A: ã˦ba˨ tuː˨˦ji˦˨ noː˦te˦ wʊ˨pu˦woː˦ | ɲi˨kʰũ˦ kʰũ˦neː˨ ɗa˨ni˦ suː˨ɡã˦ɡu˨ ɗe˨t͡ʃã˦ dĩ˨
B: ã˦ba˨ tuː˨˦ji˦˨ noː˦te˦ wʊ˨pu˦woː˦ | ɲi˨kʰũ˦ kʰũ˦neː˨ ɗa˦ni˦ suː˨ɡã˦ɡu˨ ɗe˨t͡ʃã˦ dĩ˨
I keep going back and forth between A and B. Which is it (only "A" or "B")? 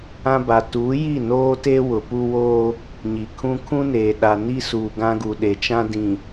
A